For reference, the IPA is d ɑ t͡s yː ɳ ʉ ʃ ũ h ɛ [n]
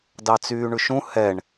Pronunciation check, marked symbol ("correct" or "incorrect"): incorrect